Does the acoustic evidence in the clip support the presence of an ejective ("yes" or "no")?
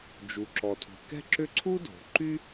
no